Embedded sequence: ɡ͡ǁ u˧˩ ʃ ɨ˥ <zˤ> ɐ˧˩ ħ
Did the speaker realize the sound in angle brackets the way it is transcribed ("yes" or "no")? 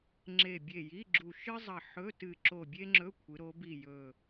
yes